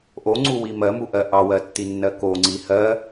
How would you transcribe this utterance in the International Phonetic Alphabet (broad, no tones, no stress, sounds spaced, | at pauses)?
ʔ o ŋ͡ǀ u w i m ɜ m u ʔ ɜ ʔ ɑ w ɜ tː i nː ɜ k o ŋ͡ǀ i h ɜ